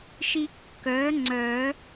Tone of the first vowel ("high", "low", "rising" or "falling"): high